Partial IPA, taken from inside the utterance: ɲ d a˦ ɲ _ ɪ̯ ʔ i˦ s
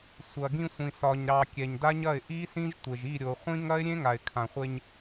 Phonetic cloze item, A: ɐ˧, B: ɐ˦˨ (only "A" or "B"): B